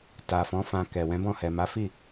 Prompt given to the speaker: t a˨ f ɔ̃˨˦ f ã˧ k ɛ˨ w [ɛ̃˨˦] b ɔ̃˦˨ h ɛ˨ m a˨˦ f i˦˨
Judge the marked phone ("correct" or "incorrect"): correct